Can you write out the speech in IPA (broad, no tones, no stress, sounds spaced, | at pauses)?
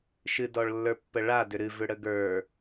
ʃ ɨ d ɔ ɭ lː ə˞ pː ə ɭ a d ʏ ɾ ɨ v ʏ ɽ ə ɡ ə˞